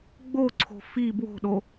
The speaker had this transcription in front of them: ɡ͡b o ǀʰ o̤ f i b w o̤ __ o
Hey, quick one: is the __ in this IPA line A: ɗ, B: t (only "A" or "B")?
A